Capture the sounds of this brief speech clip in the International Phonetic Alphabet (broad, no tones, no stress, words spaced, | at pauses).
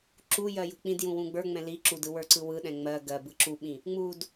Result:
ǁujɜ jṳk͡pĩdjũ wũɡ͡bə˞ŋ͡mɛ̃ li ǁudɯ wə˞ǀɯwɯɗɛ̃ ŋ͡mɜ ɡɜ bɯǁuɓĩ | ŋ͡mud